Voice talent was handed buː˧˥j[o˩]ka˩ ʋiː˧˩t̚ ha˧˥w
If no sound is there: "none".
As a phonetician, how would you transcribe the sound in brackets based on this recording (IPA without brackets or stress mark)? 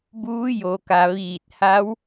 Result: o˩